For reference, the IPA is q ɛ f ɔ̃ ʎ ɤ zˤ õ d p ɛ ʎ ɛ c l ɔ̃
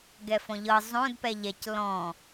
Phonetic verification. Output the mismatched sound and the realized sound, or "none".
q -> ɡ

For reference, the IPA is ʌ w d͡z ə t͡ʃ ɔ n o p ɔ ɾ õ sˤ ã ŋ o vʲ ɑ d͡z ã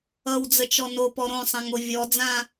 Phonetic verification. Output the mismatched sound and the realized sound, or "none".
ɑ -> ɔ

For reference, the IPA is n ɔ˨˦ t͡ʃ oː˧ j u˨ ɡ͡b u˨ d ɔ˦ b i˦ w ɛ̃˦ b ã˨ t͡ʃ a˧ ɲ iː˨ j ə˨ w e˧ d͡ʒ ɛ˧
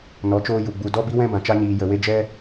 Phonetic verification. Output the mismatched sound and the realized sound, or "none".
none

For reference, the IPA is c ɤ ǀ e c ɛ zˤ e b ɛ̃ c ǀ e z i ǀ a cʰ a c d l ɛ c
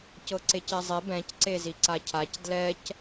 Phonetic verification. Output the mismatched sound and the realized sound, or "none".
none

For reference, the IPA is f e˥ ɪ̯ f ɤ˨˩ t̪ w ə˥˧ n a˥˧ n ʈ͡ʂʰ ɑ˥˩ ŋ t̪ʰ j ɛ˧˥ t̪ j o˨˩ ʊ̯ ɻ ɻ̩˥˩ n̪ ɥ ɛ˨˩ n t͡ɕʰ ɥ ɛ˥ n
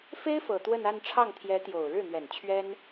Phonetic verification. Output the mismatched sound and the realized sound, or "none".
none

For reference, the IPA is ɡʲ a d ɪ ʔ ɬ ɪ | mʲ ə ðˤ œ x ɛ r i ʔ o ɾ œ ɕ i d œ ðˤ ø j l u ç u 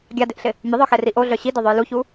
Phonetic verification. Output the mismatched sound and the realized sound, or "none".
ɾ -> ɮ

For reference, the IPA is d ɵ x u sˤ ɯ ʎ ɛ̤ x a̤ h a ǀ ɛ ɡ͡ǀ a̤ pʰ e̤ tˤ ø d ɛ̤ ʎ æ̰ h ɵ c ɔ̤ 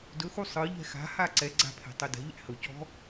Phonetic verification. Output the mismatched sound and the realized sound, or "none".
none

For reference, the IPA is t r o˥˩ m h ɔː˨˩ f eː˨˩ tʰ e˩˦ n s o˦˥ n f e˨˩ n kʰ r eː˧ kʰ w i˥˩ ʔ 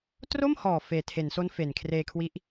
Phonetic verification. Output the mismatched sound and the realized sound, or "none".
i˥˩ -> i˦˥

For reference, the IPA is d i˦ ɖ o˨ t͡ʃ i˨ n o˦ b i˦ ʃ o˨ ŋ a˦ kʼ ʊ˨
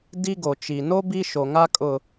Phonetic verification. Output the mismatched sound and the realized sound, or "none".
ɖ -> ɡ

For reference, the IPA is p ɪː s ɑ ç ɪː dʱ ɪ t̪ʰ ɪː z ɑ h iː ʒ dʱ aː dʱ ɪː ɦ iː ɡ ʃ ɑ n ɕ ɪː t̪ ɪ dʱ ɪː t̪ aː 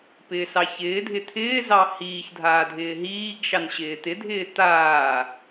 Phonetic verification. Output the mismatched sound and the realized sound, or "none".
ʒ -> ç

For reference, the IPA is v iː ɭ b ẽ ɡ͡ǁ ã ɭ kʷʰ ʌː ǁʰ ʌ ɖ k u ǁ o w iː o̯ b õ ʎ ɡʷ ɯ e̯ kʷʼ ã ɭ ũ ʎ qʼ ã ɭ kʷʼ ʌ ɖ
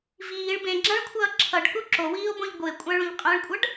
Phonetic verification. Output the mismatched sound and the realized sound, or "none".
none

